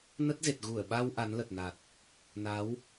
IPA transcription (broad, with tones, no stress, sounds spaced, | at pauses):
n ə˦˥ t̚ z e˨˩ t̚ ɣ u˧˩ ə̯ ɓ a˧ w ʔ a˨˦ n l ə˨˩ t̚ n a˨˩ t̚ | n a˨˦ w